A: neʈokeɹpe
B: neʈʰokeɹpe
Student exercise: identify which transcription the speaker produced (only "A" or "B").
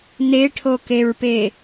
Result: B